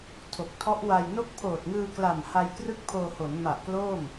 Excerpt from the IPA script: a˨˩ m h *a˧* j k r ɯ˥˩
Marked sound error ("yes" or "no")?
no